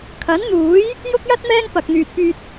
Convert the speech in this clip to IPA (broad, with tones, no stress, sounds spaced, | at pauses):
kʰ ɐ˨˥ n n̪ uː˨˥ j | j ʊ˥ k̚ j ɐ˥ t̚ m ɛː˥ ŋ p ɐ˨ k̚ n̪ yː˨ t̚ p yː˧ t̚